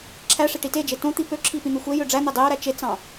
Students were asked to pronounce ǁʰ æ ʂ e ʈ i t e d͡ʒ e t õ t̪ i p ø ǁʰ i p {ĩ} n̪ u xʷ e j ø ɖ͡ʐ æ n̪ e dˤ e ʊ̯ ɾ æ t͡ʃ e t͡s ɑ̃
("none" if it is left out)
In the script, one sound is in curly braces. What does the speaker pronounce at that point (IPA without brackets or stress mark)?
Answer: ĩ